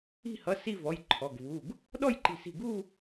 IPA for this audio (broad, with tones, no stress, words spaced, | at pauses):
i̤˥˧ hʌ˩˧˩ si˥˧vɔ˩˧˩j ǃʰɔ˩˧˩ɡvu˩˧˩ɡ | ɗɔ˥˧jǃi̤˧˩si̤˧˩ɡu˥˧